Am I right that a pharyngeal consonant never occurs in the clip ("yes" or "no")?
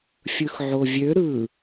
no